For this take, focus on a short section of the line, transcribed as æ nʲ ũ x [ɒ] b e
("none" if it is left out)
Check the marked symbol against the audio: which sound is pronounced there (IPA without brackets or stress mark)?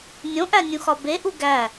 ɒ